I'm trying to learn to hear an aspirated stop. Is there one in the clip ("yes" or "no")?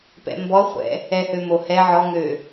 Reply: no